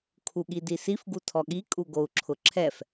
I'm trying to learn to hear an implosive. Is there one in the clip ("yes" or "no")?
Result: yes